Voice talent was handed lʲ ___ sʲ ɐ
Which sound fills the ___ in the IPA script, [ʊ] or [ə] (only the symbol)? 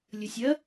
ə